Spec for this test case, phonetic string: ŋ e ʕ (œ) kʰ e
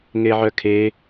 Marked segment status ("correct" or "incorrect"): correct